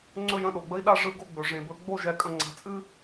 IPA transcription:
ŋ͡ǀ ɵ˦˨ j ə̃˦˨ ɗ o˨ ɡ͡b ə˦ i̯ ɗ a˦ ʐ ɯ˨˦ ɡ o˦˨ ɡ͡b ɵ˨ ʐ ẽ˨ b ɵ˨˦ ɡ͡b o˦˨ ʒ ɛ˨ kʼ ə̃˨ ŋ͡ǀ a̤˨ t͡sʼ ɨ˦

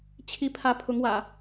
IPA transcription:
t͡ɕʰ i˨˦ pʰ ä˨˦ pʰ ʊ˨˦ ŋ w ä̰˨˩

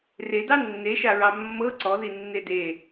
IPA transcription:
r e d ɑ nː e ʃ a ɹ ɑ mː ɤ ǀ ɔ ð i nː e d e

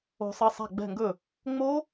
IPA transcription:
o̤˨˩˦ sˤ ʌ˩˧˩ sˤ a̤˧˩ ɡ͡b ɛ̤˧˩ ŋ ɡ ɵ˧˩ | ŋ͡m o˦˥

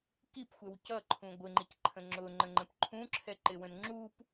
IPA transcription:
k i p xʷ ɛ w c ʌ ǃʰ ũ ɡʷ ɪ ŋ͡ǃ i c ǃʰ ə̃ ŋ͡ǁ ʊ ŋ͡ǃ ə̃ ŋ͡ǃ ə̃ p ǃʰ ũ ǁʰ ɛ ǃ ɪ w ə̃ n ŋ͡ǁ u p

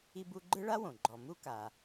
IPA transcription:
i˦ b u˦ ɡ͡ǃ ɯ˥ ɭ a˥ w õ˩ ɡ͡ǃ ɔ˨ m u˥ k a˨

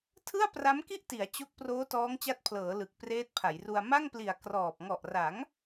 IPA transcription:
tʰ ɯ˥˩ a̯ p r a˦˥ m k i˥˩ ʔ t i˩˦ a̯ t͡ɕ o˦˥ k̚ p r oː˦˥ t ɔː˦˥ ŋ t͡ɕ a˦˥ t̚ pʰ l ɤː˩˦ l ɯ˨˩ k̚ p r eː˦˥ t̚ pʰ a˩˦ j r u˧ a̯ m a˥˩ ŋ p l i˨˩ a̯ k r ɔː˨˩ p̚ ŋ ɔ˨˩ ʔ r a˩˦ ŋ

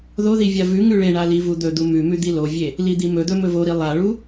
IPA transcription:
ð o ð i vʲ a v ʉ ŋ ʉ ɭ e ɳ a l i v u d̪ ɵ d̪ u m ʉ m ʉ d̪ i l o vʲ e | l i d̪ i m ɵ d̪ ɵ m ɵ v o ɾ i lˠ a ɭ u

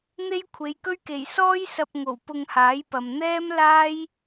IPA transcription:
n̪ e˥ j kʷʰ e˨˧ j k ɵ˥ ɥ k e˨˩ j s ɔː˥ j s ɐ˧ p̚ ŋ o˨˩ w p ʊ˧ ŋ h aː˨˥ j p ɐ˨ m n̪ ɛː˥ m l aː˥ j

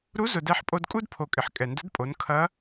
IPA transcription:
ɾ u˧˥ z ʊ˩ d ɛ˧ ħ pʼ o˧ d kʼ u˥ d pʰ o˩ kʼ ɪ˩ ħ kʼ ɛ˩ n d ə˧˥ d pʼ o˩˧ n kʰ ɐ˧˥

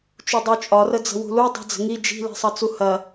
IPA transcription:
t͡ʃ u dˤ u t͡ʃʼ ɒ r ə d͡z ə̤ w ṳ l u dˤ i̤ d͡z ə̤ ŋ i d͡ʒ i̤ l i̤ sˤ ʌ t͡s u h ɐ

